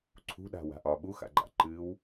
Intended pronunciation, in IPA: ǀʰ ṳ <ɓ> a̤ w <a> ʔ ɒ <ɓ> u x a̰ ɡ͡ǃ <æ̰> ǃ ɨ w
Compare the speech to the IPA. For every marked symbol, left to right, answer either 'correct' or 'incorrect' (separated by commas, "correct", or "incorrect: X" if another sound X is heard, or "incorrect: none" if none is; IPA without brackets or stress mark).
incorrect: ɗ, incorrect: a̤, correct, incorrect: a̰